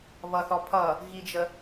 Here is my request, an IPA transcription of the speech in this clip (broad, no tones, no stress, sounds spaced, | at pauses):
β ʌ θ ɔ pʰ ʌ | ɣ i d͡ʒ ə